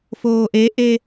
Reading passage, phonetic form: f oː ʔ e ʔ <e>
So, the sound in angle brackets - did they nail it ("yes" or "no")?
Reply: yes